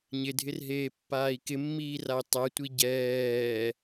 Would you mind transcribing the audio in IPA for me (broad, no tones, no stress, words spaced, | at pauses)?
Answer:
ɲɪdʱɪrɦeːpːaːi̯ kɪmːiːrai̯ tˤɛtʷi ɟɛː